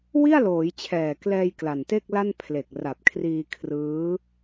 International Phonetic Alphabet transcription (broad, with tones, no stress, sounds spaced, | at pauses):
w i˥˩ a̯ l oː˩˦ j t͡ɕʰ ɛː˨˩ k l ɛː˧ j k l a˨˩ n t e˥˩ k̚ l a˥˩ n pʰ l e˨˩ k̚ r a˨˩ p̚ kʰ r iː˧ kʰ r ɯː˦˥